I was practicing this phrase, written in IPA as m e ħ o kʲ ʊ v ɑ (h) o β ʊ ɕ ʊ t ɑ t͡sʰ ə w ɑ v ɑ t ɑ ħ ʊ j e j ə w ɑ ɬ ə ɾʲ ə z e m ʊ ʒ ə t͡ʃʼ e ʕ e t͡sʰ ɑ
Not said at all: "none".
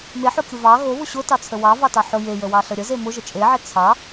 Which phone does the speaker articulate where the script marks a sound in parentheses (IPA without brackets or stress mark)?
ɣ